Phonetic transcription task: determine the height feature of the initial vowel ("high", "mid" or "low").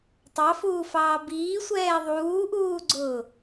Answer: low